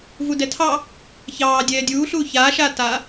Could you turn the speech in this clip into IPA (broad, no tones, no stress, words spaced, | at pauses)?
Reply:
vudɛtʰɑ | çɑːdʲɛː dʲuːɬuː çaːʃaː ta